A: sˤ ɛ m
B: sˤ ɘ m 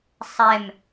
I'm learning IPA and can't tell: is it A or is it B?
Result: A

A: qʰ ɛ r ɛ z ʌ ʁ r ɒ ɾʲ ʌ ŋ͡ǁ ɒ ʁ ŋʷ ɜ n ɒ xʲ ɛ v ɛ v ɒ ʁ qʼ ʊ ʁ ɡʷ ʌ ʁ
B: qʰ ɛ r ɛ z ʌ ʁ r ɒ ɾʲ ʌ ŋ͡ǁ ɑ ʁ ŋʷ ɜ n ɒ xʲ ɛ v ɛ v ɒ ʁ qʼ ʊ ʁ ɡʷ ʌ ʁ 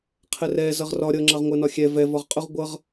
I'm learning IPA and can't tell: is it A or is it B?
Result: B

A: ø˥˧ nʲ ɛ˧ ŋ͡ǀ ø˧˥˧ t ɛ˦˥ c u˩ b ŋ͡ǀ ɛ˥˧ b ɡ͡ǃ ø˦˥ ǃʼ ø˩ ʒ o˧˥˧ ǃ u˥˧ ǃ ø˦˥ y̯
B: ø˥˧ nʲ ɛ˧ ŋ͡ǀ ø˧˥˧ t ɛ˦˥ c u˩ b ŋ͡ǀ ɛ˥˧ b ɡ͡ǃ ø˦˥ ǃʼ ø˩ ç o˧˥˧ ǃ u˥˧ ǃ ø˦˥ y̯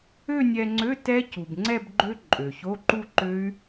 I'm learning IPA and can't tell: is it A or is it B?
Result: B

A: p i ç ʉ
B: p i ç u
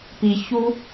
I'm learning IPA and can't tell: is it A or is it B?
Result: B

